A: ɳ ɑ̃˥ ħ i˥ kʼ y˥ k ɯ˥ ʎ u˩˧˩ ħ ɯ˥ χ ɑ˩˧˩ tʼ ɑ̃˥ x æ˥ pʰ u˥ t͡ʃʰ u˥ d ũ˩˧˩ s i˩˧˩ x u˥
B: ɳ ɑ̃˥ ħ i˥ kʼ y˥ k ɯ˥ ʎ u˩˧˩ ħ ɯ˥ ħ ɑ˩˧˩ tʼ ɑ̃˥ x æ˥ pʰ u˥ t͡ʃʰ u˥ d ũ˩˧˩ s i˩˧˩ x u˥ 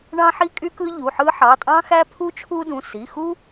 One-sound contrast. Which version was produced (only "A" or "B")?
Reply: B